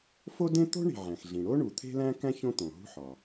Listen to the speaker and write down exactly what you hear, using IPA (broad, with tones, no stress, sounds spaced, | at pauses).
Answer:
f o˥ d ẽ˥ t̪ o̤˥ ɳ i̤˩ ʕ æ̃˩ x ɮ ĩ˩ ɽ o˥ ɳ u˩ t̪ʰ e̤˥ l æ̃˥ k æ̃˥ ç õ˥ t̪ õ˩ ɦ ṳ˥ ħ ɒ˩